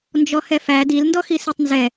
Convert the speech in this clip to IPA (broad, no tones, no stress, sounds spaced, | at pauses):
n d͡ʒ ɔ h ɛ f æ d i l n d ɔ x i s i tˤ n z ɛ